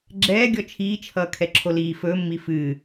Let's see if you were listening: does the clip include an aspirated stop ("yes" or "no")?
yes